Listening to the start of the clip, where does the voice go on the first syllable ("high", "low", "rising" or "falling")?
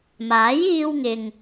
rising